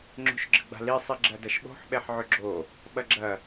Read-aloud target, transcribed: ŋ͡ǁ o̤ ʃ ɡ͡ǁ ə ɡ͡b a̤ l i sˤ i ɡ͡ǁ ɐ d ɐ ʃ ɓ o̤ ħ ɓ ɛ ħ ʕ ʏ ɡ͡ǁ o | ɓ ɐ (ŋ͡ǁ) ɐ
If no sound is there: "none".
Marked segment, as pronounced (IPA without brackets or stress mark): ɡ͡ǁ